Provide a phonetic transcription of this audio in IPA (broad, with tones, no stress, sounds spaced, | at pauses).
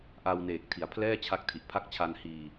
ʔ a˧ w n eː˨˩ k̚ tʰ i˩˦ a̯ pʰ l ɛː˥˩ t͡ɕʰ a˦˥ k̚ tʰ i˨˩ ʔ pʰ a˦˥ k̚ t͡ɕʰ a˧ n h iː˧